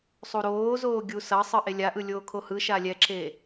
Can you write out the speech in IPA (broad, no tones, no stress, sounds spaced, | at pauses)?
sˤ u ɾ oː z oː ɡʲ u s ʌ sˤ ɯ ʔ e lʲ a ʔ ɯ lʲ oː kʰ o h ɯ ʃ a lʲ ɛ ǁ e